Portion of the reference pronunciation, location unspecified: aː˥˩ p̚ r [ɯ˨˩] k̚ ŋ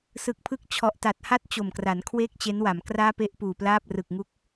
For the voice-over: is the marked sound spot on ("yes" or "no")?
yes